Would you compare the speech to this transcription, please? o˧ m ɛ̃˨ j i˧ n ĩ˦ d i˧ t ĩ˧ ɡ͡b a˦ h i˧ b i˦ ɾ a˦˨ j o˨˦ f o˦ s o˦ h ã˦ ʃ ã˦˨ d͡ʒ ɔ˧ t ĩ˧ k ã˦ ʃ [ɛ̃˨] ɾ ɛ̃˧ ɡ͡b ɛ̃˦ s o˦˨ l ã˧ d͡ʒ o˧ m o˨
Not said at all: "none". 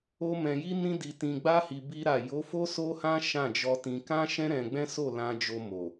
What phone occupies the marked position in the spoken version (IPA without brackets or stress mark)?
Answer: ɛ̃˦